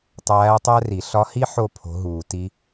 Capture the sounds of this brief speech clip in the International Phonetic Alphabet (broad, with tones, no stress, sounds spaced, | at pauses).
tˤ æː˧˥ tˤ æ˥ r i˨˩˦ ɬ ɒ˧˥ h i˥ ħ o˦˨ pʰ o̤˧˥ ɦ uː˨˩˦ t i˧˥